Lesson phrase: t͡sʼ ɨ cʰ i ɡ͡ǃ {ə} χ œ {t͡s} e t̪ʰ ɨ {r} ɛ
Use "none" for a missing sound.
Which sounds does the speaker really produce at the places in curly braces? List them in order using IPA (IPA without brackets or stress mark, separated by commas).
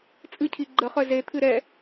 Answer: ə, z, ɾ